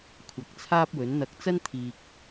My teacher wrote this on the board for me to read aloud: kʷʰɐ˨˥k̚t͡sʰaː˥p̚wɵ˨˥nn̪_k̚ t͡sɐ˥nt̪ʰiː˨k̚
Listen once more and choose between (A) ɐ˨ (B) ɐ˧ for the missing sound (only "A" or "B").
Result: B